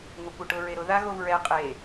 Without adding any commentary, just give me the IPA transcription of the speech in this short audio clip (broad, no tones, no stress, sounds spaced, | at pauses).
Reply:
ŋʷ a kʷ ɛ ʈ ʊ ɹ e ɾ ʊ ð a ɣ o v ɹ ɛ qʼ e